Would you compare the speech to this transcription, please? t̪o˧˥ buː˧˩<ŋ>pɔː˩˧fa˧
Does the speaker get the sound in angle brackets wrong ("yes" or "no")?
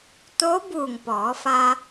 no